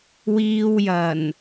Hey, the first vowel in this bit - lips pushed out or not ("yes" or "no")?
no